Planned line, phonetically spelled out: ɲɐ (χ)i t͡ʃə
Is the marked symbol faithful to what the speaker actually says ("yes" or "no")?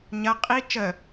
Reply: no